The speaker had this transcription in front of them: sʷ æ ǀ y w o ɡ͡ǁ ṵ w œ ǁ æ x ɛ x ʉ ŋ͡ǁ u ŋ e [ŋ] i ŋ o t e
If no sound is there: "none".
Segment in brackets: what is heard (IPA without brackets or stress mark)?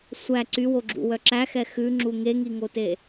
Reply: ŋ